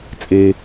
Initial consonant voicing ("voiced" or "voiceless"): voiceless